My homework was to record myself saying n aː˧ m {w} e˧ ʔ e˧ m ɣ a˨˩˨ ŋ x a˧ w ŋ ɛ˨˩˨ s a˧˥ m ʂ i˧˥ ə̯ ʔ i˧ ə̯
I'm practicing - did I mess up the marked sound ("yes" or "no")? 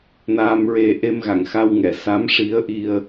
yes